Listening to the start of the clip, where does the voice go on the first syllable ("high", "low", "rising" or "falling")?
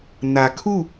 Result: low